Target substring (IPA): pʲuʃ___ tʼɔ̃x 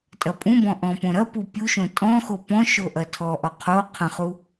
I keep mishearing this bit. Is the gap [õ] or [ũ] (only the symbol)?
õ